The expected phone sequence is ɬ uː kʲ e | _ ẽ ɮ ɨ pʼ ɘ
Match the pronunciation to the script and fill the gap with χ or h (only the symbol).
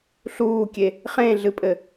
χ